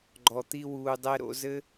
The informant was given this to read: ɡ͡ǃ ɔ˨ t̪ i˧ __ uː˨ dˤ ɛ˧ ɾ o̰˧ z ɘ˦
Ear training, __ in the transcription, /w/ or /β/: w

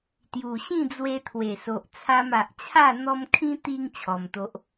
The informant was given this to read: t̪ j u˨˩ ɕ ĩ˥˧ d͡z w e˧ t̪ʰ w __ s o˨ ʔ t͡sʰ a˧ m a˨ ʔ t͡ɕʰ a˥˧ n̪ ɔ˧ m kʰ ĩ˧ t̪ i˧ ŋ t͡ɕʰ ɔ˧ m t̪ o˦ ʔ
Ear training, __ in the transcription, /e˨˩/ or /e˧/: e˨˩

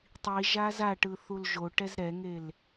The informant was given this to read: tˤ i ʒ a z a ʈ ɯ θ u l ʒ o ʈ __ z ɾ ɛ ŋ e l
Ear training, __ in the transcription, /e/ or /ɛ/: ɛ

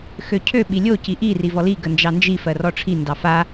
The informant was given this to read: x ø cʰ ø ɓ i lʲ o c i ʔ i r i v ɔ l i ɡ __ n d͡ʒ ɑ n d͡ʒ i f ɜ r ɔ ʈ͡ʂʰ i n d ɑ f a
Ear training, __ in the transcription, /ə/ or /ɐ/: ə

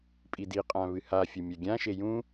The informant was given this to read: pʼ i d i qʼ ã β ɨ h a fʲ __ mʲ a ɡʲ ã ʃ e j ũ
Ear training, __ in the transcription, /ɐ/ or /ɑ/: ɐ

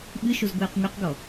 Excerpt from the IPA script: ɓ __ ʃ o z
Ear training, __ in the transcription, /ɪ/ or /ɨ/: ɨ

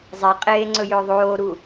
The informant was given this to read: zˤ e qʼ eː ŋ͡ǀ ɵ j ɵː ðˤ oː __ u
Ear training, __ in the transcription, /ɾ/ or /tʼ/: ɾ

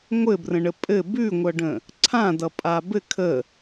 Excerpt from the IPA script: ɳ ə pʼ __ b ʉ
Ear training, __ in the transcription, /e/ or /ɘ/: ɘ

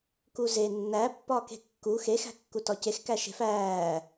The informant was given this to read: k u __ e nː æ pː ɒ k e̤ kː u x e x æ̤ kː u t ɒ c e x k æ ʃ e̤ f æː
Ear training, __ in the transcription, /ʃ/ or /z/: z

